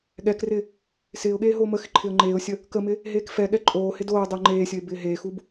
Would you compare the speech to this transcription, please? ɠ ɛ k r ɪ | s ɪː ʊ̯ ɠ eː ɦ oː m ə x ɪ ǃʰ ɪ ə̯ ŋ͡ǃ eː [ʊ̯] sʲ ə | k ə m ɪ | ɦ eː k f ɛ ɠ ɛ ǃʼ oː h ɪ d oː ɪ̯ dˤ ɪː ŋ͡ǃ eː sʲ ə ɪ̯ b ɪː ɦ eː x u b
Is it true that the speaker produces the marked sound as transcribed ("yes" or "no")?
yes